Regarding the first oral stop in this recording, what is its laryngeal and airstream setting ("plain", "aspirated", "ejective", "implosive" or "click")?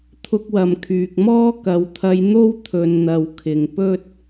aspirated